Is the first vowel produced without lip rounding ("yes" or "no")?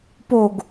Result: no